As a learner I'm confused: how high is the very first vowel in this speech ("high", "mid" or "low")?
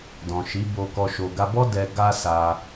mid